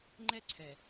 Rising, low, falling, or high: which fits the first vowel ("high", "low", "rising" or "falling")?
high